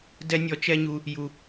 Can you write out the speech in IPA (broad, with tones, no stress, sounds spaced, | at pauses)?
d ɛ˦ nʲ ɔ˧ t͡ʃ ɛ˦ ɲ u˧ | j u˨